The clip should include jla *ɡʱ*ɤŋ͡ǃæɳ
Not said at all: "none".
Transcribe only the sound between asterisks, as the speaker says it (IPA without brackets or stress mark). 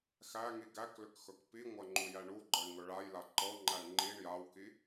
ǃ